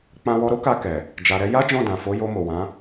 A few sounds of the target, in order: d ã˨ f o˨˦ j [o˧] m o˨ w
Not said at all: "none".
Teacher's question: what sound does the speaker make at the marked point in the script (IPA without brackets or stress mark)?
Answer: o˧